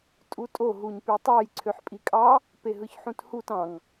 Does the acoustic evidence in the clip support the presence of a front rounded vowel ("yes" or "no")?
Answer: yes